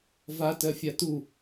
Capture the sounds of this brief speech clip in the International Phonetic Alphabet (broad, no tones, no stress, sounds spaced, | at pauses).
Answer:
v a t ɜ fʲ a t u